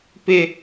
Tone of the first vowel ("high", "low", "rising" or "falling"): high